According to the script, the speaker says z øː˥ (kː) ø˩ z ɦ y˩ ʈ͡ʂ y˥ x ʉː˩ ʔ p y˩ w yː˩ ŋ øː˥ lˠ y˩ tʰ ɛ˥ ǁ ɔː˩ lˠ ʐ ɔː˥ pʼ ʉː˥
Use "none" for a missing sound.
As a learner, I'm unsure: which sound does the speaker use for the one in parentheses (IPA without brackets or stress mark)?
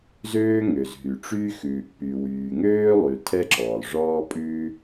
ŋ